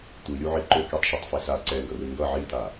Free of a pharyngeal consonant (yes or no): no